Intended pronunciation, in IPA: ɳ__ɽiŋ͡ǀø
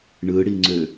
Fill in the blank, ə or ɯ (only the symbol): ɯ